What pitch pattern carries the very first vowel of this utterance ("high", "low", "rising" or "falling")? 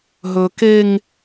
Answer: high